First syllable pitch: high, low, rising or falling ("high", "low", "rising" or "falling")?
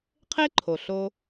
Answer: high